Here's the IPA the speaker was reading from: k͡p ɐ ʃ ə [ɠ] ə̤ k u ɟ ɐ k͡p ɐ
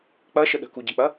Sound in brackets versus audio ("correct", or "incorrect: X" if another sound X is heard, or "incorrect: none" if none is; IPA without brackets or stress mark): incorrect: ɗ